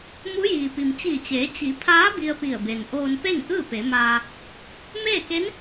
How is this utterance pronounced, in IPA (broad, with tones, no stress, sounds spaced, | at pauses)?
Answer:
m u˧˥ j iː˩ p i˩ m t͡ɕ iː˧˩ t͡ɕ eː˩˧ t͡ɕ i˩˧ pʰ aː˧˥ b i˧ ə̯ p i˧˩ ə̯ b e˩ n ʔ oː˧ n p e˥˨ ŋ ʔ ɯː˥˨ p e˩˧ m aː˧ | m eː˥˨ k e˧˥ n